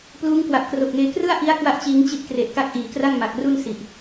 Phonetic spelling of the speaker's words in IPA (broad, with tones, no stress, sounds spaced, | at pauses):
p l uː˦˥ ŋ k w a˨˩ p̚ k r o˨˩ k̚ ŋ eː˧ k r ɯ˥˩ a̯ ʔ i˦˥ a̯ k w a˥˩ ʔ t͡ɕ iː˦˥ ŋ t͡ɕ i˥˩ ʔ k r e˨˩ ʔ k a˦˥ k̚ ʔ iː˩˦ k r a˥˩ ŋ m a˨˩ k̚ r u˥˩ n s i˨˩ ʔ